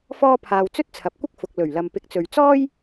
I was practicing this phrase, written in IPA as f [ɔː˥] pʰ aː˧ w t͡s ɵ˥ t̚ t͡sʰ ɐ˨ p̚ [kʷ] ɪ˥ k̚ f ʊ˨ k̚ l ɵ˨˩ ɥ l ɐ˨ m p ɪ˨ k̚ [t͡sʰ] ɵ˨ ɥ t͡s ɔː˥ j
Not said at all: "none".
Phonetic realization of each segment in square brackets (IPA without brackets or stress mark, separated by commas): ɔː˥, kʷ, t͡s